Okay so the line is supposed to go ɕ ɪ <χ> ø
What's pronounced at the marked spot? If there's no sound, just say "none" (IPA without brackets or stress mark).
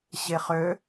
χ